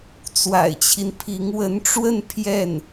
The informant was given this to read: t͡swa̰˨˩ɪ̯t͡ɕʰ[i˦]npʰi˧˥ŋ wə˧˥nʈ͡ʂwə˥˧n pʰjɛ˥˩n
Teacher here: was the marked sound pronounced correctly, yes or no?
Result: yes